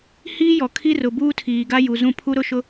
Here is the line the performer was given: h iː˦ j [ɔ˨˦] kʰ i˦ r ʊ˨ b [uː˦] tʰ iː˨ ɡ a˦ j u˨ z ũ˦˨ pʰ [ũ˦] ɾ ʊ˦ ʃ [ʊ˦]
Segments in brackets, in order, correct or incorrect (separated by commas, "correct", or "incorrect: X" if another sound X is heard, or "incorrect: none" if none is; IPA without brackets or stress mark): incorrect: ɔ˨, correct, incorrect: u˦, correct